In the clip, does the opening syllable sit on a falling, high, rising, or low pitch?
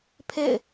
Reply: falling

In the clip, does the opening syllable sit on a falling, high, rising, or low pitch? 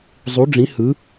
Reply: rising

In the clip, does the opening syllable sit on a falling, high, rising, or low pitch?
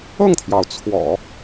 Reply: falling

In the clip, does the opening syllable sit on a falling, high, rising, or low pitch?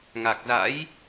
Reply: low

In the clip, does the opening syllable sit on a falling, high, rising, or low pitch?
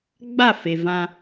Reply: falling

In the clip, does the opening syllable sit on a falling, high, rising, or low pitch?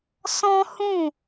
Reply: high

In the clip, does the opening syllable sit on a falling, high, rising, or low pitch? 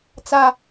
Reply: high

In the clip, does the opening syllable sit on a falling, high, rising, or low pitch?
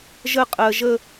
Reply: falling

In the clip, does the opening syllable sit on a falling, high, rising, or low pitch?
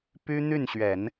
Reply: high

